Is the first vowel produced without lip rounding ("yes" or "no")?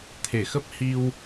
yes